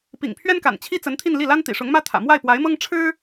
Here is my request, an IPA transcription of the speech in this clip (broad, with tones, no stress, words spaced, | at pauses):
pḭ˨˩ŋpʰɥɛ˥nka̰˨˩n t͡ɕʰi˥t͡sə˧˥n t̪ʰi˥˧nli˥˩la˥nt̪ḭ˨˩ ʂʊ˧˥ŋmä˥t̪ʰä̰˨˩ mwa˥˩ɪ̯pwa˧˥ɪ̯mɤ˥ŋ ʈ͡ʂʰɻ̩˥